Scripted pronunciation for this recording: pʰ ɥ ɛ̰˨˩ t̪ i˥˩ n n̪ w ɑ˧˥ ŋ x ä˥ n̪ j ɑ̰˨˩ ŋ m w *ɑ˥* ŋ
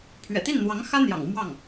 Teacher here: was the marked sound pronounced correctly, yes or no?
no